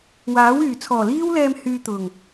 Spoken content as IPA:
w aː˨˥ w yː˨˩ t͡sʰ ɔː˨˩ l iː˥ w l ɛː˧ m h yː˧ t̪ ʊ˨˩ ŋ

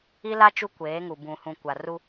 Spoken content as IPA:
i˦ l a˦ t͡ʃ u˦ kʷ eː˨˦ ŋ u˨ b ũ˨ h ũ˨ kʷ a˨ r u˦

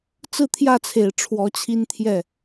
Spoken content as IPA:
t͡s ɹ̩˥˧ t̪ʰ j ä˥˩ t͡sʰ e˨˩ ɪ̯ ʈ͡ʂʰ w ɔ˧˥ t͡ɕʰ i˥ n t̪ʰ j ɛ˥˩

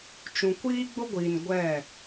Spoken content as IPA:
t͡ʃ ũ˨ kʷ iː˦ ɡ͡b ʊ˦ ɡʷ iː˨ n ɡʷ ɛ˦˨

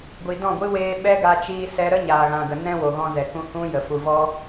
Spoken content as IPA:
ɡʷ i˨ d ɔ̃˦˨ ɡʷ ɨ˦ w eː˧ ɓ ɛ˦ ɡ a˧ t͡ʃ iː˧ s ɛ˧ ɾ ə˦ ɲ aː˨ ɣ ã˨ ɡ ə˨ n ɛ̃˦ w o˨ ɣ ɔ̃˧ z ɛ˨ k ũ˧ h ũ˦ j ə˨ f u˨ v ɔ˧

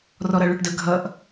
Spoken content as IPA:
r ɔ ɾ ʌ ɭ ə˞ ʈ d ə ɡʱ ʌ ʔ

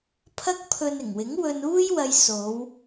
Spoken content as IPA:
pʰ ɐ˥ k̚ pʰ ɵ˧ n ɪ˨˩ ŋ w ɪ˨˥ ŋ w ɵ˧ n uː˥ j w ɐ˧ j s o˨˧ w

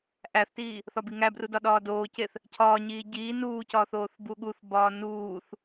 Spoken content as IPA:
ʔ æ θ t iː | θ ɒ b i ŋ æ b r u d ɒ ɗ ɒː d oː c e θ | cʰ ɒː ɲ iː ɟ iː n uː c ɒː θ oː θ b u ɠ u θ b ɒː n uː θ

